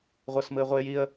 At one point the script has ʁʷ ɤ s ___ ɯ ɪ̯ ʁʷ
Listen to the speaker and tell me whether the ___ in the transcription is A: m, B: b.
A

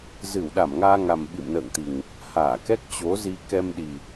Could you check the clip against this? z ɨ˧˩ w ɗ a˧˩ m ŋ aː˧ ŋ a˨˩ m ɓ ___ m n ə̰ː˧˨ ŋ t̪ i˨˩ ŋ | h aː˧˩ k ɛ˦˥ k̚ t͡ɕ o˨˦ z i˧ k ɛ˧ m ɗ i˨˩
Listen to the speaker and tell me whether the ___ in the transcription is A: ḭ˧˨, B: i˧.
A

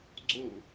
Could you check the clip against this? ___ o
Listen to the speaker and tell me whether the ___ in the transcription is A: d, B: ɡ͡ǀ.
B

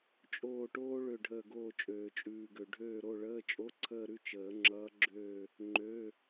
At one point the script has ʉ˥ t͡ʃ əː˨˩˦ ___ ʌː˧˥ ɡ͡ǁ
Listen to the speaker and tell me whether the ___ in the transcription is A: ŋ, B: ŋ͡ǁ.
B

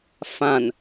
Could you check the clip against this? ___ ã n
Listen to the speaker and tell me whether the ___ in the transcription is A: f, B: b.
A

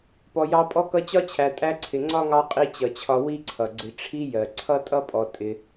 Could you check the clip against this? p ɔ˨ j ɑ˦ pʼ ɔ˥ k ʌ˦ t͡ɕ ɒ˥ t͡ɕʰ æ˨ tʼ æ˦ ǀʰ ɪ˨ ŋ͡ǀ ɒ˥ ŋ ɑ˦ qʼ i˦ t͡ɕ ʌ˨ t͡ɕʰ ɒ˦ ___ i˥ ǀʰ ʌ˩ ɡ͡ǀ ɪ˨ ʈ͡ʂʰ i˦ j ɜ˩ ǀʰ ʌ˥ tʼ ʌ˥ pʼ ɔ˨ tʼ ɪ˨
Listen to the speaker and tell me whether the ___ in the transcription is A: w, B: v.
A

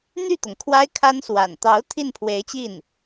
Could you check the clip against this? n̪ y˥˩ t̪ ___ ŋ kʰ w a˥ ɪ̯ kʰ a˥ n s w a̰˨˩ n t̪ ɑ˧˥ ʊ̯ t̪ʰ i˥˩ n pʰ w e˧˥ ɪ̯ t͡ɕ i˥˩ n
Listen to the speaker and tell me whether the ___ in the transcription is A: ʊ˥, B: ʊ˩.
B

